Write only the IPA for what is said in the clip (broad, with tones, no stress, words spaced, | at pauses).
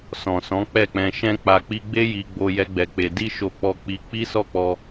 sɔ̃˨sɔ̃˨˦ k͡pɛ˦˨k͡pɛ̃˧ ʃɛ̃˧k͡pa˨k͡pi˧ɡ͡be˦ ji˧ɡ͡bo˧ jɛ˦ɡ͡bɛ˧k͡pe˧ di˦ʃo˧ k͡pɔ˧k͡pi˧k͡pi˦ sɔ˦˨k͡pɔ˧